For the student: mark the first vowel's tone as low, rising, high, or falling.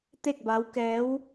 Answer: falling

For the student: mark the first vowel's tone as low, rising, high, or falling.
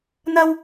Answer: high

